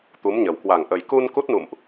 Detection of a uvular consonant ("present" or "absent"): absent